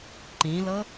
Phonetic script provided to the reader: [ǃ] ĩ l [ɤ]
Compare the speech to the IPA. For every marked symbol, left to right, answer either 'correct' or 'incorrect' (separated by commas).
correct, correct